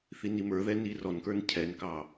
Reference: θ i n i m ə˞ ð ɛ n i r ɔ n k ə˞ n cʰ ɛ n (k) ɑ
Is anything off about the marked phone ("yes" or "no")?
no